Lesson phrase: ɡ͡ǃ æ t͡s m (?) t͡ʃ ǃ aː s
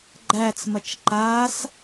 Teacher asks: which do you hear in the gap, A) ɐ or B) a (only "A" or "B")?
A